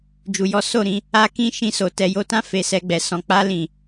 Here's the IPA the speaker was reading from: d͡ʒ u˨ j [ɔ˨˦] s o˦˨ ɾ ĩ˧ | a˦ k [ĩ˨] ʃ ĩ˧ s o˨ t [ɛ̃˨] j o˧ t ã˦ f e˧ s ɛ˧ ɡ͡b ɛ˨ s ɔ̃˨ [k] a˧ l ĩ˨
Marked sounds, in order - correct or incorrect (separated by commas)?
correct, incorrect, incorrect, incorrect